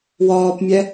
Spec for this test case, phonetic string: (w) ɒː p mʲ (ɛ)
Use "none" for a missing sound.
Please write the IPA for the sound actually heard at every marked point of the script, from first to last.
w, ɛ

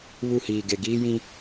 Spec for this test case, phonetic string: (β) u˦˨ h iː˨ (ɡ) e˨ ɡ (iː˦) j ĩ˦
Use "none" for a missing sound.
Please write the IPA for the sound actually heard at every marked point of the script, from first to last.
β, ɡ, iː˦

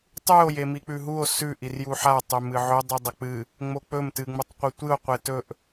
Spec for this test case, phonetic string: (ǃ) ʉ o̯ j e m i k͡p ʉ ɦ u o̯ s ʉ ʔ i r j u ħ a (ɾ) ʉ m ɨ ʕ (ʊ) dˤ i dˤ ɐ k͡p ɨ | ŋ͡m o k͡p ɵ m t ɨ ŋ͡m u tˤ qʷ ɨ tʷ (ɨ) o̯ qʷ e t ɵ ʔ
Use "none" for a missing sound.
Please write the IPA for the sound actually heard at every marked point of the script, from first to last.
tˤ, tˤ, ɵ, ɨ

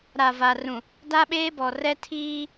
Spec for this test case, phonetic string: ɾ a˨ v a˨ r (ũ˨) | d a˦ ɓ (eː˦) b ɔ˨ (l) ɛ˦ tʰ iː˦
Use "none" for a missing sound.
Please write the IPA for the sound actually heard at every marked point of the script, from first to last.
ũ˨, eː˦, r

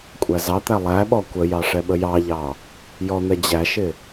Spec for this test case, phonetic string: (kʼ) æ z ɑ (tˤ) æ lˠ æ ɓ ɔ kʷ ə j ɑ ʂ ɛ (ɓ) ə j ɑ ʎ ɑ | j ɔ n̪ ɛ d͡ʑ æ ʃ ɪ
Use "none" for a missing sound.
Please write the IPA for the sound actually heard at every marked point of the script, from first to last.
kʷʼ, t̪, ɓ

